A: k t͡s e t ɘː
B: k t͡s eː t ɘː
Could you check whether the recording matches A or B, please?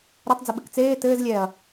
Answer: B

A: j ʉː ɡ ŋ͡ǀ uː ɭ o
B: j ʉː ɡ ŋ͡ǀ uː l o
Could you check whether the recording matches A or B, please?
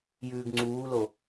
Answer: B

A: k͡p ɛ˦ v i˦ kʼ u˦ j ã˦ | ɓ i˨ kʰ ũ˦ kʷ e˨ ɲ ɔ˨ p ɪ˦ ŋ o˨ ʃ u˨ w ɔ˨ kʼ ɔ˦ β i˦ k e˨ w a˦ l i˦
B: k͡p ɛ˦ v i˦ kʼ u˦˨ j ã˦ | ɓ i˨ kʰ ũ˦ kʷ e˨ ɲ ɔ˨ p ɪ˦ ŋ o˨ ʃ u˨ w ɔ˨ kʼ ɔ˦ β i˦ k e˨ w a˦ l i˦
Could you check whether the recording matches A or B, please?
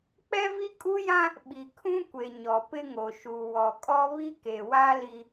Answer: A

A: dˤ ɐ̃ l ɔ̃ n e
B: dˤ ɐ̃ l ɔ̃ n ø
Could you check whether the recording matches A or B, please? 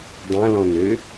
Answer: B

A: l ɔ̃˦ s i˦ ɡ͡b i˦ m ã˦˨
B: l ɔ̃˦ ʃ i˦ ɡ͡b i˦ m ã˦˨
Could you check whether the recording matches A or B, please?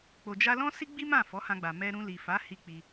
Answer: A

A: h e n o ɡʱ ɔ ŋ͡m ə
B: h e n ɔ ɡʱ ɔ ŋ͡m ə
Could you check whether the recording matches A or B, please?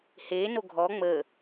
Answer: A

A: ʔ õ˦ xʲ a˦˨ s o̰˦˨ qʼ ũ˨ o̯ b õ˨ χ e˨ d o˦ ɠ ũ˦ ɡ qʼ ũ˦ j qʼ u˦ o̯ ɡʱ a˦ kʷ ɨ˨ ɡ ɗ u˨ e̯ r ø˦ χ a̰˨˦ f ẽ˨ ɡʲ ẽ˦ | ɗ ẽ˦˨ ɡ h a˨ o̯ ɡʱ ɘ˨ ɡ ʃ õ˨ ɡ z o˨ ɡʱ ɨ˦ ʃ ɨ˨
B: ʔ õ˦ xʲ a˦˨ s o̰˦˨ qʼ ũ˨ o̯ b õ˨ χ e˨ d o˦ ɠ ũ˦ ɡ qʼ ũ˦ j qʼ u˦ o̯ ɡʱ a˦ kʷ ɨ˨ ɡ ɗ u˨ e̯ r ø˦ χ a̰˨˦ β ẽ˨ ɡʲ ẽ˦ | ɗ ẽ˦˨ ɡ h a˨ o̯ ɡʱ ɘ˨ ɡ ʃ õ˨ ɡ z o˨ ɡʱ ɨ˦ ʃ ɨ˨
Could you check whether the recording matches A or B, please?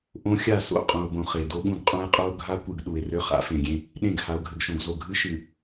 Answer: A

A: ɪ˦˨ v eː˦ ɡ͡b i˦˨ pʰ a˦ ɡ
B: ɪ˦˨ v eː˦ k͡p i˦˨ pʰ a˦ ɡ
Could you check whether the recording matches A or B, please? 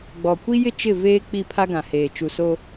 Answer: B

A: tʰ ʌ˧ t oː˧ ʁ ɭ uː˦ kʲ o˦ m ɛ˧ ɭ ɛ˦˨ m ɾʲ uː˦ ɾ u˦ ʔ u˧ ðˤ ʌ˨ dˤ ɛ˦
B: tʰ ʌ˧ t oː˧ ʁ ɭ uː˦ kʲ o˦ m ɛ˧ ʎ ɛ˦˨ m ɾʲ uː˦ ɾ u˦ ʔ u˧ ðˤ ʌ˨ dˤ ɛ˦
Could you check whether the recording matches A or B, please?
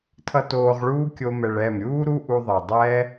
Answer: A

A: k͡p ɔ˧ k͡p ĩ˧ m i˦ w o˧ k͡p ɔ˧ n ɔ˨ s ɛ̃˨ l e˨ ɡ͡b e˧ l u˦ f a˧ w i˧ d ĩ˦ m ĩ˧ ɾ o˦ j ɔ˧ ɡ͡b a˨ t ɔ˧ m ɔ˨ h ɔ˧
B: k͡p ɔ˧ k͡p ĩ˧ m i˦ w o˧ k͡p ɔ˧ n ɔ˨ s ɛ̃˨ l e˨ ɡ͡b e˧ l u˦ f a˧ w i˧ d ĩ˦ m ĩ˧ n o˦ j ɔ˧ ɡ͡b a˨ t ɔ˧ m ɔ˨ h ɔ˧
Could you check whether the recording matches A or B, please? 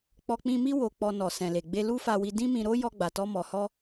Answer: A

